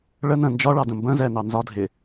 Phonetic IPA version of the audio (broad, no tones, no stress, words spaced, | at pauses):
ɭə nə̃ nd͡ʒɒɭɑ də̃mbə̃ zɛnɑ nzɒ dʱɪ